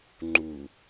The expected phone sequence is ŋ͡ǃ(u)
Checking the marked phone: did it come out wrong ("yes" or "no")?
no